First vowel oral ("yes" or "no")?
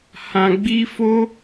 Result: no